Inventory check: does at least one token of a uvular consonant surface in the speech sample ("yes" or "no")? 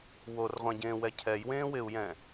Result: yes